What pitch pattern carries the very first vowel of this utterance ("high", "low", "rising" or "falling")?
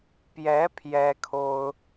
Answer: rising